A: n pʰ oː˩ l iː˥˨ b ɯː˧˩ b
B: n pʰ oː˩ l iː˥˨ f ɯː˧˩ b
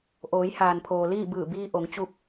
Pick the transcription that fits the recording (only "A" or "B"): A